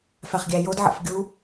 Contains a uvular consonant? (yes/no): yes